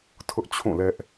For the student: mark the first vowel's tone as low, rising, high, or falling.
high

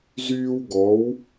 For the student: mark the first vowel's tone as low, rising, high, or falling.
high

